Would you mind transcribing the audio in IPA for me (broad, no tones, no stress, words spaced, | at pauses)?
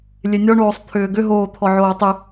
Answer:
lʲenʲɒɳoːsˤ t̪ʰʏːɡʏɦoː t̪ʰɔʕoːtˤʏ